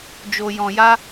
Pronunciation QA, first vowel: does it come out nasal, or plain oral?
oral